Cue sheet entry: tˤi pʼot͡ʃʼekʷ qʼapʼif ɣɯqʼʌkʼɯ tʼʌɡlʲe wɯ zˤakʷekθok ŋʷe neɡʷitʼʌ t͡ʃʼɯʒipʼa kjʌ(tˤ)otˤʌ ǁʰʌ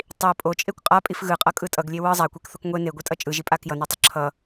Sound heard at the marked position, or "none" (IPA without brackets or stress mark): n